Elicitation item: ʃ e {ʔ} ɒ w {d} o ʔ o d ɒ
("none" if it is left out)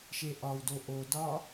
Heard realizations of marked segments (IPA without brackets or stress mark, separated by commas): ʔ, d